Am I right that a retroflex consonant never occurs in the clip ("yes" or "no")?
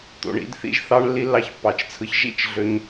no